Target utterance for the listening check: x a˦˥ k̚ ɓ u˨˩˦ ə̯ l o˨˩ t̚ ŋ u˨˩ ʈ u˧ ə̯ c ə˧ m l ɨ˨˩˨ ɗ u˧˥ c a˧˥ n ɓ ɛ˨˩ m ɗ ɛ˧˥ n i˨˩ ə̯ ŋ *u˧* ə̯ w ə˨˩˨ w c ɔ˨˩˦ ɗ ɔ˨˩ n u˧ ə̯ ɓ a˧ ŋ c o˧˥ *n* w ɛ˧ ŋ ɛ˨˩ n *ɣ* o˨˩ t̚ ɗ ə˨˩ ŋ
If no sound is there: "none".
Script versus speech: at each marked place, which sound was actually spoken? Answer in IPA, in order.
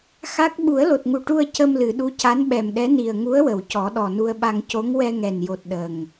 u˧˥, ŋ, j

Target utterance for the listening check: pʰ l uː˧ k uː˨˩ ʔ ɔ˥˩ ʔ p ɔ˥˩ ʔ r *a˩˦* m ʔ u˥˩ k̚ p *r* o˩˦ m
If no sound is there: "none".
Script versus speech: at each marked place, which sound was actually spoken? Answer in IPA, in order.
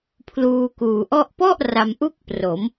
a˧, r

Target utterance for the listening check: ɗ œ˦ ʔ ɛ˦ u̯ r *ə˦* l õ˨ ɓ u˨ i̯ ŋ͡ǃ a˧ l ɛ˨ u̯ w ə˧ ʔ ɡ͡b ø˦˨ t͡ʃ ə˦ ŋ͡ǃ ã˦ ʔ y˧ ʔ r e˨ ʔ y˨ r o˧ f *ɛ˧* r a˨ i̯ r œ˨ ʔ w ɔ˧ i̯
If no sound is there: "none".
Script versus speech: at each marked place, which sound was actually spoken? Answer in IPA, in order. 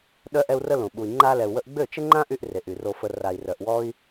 ə˦, ə˧

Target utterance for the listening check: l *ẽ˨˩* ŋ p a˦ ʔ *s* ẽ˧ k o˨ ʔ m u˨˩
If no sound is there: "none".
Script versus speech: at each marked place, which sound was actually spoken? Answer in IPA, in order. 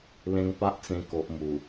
ẽ˦, t͡s

